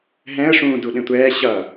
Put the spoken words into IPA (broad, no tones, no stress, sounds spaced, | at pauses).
ɦ ɛ̃ ə̯ ʂ ũː d u ɗ ẽ tʷ ɛː ɕ ʌ